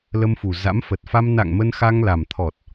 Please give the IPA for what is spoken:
l ə˧ m f u˨˩ z a̰˧˥ m f ə˨˩ t̚ f a˧ m n a̰˧˨ ŋ m ə˧ n x a˧ ŋ l a˨˩ m t̪ʰ ɔ˨˩ t̚

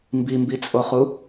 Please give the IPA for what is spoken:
m b i m b i t͡sʼ o χ u

